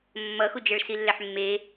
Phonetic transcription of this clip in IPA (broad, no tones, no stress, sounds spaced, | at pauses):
mː ʌ x u d͡ʒ ɛ ɭ s i lː ɛ ħ mː e